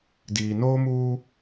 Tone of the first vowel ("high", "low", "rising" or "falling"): low